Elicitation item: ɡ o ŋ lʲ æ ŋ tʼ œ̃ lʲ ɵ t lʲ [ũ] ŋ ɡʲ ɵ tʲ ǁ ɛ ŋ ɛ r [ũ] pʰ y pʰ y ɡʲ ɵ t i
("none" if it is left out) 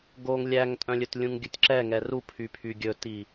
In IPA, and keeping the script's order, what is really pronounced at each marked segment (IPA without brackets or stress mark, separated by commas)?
ũ, u